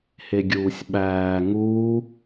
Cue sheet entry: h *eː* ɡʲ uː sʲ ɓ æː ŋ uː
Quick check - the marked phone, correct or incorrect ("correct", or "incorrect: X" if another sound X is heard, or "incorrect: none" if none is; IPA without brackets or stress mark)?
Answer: incorrect: e